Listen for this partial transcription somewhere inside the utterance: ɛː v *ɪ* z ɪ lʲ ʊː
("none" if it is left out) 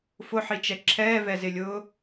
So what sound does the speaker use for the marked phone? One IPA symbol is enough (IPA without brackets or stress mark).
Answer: ɛ